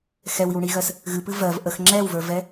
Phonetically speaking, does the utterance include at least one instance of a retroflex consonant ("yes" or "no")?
yes